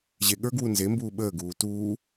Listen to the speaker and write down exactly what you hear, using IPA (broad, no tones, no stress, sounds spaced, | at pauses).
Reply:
ʑ e ɠ ə˞ ɡ w u n z e m b uː ɓ əː ɡ uː t uː